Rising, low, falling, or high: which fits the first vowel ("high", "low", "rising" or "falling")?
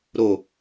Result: low